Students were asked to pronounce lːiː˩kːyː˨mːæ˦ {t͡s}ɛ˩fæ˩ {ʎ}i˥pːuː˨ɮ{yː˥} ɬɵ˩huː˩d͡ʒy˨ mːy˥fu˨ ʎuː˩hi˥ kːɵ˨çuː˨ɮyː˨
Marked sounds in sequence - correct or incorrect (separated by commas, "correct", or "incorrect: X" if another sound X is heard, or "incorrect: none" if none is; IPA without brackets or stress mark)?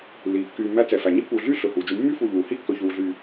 correct, incorrect: ɲ, correct